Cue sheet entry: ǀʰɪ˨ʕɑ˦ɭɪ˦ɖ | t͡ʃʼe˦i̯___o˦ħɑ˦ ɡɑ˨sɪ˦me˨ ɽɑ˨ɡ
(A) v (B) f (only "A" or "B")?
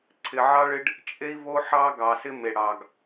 A